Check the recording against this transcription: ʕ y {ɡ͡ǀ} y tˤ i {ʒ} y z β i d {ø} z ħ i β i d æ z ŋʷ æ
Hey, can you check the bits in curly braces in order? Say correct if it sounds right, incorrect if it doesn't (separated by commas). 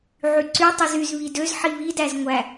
incorrect, incorrect, correct